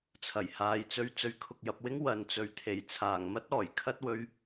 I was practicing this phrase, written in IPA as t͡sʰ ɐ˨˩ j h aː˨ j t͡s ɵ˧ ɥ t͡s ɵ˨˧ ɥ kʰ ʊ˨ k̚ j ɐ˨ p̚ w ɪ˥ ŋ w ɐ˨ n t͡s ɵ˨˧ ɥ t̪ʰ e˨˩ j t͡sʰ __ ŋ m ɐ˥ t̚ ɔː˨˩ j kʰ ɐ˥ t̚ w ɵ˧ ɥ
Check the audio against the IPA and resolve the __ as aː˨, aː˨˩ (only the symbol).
aː˨˩